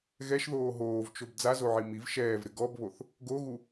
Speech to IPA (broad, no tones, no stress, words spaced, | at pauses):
ɣɛʃðoː ɦoːvt͡ʃob d͡zazoʕi miv ʃɛːvɾɪ ɡɔbβoθ | ɡoɣu